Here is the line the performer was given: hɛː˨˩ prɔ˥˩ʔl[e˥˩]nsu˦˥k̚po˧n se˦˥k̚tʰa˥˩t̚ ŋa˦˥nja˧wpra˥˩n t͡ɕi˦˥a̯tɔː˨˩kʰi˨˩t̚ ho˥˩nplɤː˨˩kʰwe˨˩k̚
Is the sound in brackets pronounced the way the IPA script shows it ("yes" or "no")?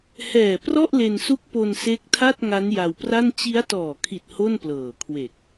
no